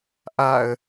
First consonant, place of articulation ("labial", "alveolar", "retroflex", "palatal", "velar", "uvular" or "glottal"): glottal